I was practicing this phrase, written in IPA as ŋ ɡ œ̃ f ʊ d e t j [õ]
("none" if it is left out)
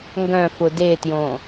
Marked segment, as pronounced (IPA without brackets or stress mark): õ